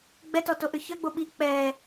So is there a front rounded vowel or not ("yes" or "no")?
yes